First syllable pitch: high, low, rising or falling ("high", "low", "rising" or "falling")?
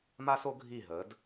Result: high